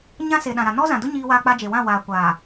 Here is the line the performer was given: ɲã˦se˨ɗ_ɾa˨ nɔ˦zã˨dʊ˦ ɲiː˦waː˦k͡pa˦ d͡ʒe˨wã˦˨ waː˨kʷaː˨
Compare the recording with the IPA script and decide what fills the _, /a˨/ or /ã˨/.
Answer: ã˨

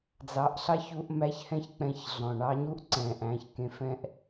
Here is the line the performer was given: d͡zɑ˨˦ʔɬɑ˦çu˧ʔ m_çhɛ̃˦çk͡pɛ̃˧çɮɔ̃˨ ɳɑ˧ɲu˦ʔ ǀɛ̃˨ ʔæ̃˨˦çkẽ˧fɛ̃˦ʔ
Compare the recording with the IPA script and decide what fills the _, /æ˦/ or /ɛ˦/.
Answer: æ˦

